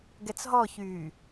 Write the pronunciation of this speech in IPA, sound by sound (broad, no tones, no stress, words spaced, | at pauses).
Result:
ɡɛt͡sɦɔçyː